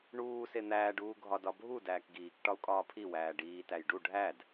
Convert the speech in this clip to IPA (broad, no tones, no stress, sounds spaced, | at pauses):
ɳ uː s e n̪ æː ɖ uː ɡʱ ɒ d ɒ bʱ u d æː k ɡ iː k ʈ ɒ u̯ kʼ ɒː pʰ i w æː ɖ iː t æ j ɖ u ɖʱ æ d